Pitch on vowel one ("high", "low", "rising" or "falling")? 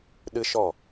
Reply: high